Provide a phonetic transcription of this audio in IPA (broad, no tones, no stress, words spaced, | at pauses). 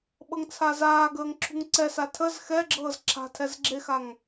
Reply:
ɓɤŋt͡sʰazaːɡəːŋ ǁʰṳŋǀɛsa tʰəz xɛɡ͡ǁɤːz ǁʰa̤tʰɛz ɡ͡ǁexaŋ